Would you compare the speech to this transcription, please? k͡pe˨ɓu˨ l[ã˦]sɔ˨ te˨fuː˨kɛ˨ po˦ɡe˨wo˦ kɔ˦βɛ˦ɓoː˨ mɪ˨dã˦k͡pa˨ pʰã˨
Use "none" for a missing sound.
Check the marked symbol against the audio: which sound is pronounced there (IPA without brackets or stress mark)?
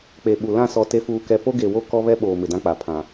ã˦˨